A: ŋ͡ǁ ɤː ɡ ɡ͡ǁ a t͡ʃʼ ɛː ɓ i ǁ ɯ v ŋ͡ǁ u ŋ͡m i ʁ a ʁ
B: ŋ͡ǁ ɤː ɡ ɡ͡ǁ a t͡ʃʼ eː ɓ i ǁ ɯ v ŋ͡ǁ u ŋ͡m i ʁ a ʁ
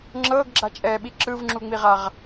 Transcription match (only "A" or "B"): A